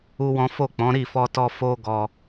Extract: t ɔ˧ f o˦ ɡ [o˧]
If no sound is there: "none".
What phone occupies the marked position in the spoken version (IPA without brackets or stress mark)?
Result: ɔ˧